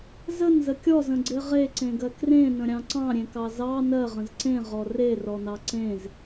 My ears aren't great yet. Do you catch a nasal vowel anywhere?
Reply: yes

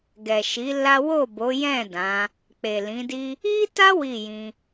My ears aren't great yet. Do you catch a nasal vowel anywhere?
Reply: yes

